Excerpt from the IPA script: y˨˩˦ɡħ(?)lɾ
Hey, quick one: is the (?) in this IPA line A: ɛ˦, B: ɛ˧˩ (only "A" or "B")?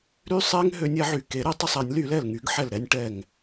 B